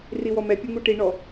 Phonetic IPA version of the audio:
r i w ɔ m ɛ pʲ o ŋ u ʈ i ɳ ɔ

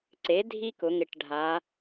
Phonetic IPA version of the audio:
ǀ e˩˥ dʱ i˦ k ʊ˩˧ ŋ ɪ˨˩ ʈ ɖʱ a˩˧

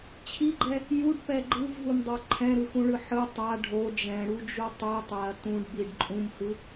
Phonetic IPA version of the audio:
t͡ɕʰ i ɡ͡ǃ ɛ | j u ɖ p ɛ ɡ͡ǃ ɯ v ɦ u m dˤ o ǃʰ ɛ̃ ɾ ɯ x ũ ɭ ɯ ħ ɯ tˤ a ɖʱ o d͡ʒ ɛ̃ ɽ u d͡ʒ u tˤ i tˤ ɛ ɐ̯ t ũ ɖ b i ɖ ǃʼ ũ m h ɯ

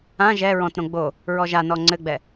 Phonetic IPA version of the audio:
ã ʒ ɛ ɹ ɔ̃ t ɾ õ ɡ͡b o | ɹ ɔ ʒ a n ɔ ŋ͡ǀ ɘ ɡ͡b ɛ

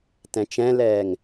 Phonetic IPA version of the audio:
t ɛ̃ t͡ʃ ɛ̃ l ɛː ŋ

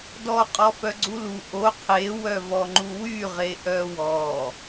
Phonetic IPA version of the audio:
d ɔ qʼ ɔ f œ ɡ͡ǀ u l u ʔ o qʰ e w œ v ɔ ŋ͡ǃ u w y ʁ e ʔ œ w ɔ

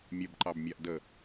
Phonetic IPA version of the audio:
mʲ ə b ǃ ɑ b mʲ a ʔ d ə

